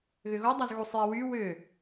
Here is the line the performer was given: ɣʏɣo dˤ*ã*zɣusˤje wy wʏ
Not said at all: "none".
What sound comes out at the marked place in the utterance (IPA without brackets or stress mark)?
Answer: a